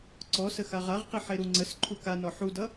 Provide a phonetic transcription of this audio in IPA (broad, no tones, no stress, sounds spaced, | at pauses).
ǀ ɔ s ə x a ʁ a ʁ q i ħ e ɾ u ŋ͡ǀ ə s ǃʰ u k a n ɔ ħ u d ʌ